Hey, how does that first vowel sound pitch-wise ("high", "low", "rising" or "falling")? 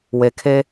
low